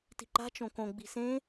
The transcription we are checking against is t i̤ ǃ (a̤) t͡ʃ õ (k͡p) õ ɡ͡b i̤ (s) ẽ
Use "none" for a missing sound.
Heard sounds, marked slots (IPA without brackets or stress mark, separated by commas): a̤, k, s